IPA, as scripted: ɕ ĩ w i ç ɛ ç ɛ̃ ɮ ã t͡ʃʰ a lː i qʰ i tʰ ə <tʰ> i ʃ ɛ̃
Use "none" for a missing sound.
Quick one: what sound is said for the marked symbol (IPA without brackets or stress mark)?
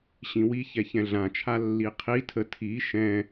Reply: tʰ